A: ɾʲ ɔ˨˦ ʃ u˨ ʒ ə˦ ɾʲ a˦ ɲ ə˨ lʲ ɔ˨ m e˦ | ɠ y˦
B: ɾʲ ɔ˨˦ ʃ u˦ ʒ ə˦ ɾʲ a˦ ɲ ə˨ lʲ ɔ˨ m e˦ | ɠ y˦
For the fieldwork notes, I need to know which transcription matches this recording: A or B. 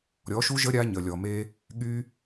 B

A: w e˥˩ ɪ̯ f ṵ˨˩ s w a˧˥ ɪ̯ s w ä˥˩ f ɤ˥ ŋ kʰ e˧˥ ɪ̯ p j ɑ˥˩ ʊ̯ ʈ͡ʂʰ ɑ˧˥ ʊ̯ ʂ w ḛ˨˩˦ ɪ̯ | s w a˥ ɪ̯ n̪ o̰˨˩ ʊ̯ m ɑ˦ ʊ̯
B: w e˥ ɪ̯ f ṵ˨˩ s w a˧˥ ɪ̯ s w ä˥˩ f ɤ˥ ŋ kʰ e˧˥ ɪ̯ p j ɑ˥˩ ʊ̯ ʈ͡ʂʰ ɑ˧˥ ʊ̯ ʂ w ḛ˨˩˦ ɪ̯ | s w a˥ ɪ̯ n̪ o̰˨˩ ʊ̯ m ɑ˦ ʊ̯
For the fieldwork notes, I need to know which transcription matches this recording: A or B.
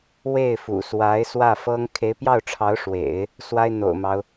A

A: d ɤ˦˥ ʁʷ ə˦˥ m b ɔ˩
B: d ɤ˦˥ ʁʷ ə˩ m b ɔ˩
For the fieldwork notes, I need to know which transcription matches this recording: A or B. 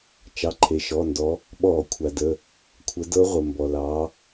B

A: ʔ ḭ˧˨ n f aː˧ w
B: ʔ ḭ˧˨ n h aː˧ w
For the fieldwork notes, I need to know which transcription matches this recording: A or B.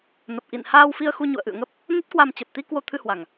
B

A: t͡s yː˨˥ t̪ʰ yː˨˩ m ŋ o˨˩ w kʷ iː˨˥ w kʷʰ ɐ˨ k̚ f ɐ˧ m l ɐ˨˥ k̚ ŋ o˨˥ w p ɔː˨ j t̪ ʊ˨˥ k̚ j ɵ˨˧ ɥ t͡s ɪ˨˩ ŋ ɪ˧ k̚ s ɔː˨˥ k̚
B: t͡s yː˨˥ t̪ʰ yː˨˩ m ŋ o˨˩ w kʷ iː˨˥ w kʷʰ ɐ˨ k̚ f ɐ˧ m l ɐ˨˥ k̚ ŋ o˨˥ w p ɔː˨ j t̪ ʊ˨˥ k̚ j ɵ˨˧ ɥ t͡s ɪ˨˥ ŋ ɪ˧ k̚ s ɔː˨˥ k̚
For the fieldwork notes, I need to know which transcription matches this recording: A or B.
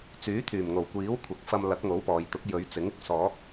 B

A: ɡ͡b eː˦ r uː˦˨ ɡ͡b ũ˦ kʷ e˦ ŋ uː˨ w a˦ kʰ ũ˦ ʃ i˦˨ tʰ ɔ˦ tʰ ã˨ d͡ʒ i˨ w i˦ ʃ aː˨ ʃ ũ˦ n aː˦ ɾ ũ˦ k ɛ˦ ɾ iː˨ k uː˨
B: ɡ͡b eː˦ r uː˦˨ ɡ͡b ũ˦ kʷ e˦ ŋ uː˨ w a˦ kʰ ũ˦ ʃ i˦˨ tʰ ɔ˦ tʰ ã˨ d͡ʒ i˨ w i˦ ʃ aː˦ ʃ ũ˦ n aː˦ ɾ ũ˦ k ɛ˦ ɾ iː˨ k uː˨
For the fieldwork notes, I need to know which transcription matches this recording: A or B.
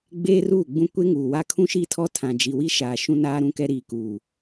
A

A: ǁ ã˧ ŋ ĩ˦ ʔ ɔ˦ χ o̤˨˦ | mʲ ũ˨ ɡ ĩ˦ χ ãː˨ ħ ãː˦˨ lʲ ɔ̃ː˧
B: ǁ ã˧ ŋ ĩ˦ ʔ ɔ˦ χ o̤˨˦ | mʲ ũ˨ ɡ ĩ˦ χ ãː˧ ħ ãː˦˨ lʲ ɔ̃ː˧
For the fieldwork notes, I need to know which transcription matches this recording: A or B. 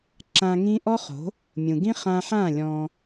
B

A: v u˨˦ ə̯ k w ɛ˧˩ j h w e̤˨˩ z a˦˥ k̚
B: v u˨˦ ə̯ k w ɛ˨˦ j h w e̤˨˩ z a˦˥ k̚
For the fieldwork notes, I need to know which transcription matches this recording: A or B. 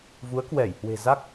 A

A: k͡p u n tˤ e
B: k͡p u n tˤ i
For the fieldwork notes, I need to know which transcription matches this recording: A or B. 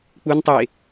A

